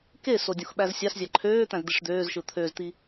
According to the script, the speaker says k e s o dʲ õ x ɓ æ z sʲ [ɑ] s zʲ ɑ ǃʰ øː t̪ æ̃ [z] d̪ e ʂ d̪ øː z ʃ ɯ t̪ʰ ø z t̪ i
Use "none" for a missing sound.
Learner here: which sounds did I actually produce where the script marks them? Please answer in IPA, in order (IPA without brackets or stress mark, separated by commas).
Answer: ɑ, z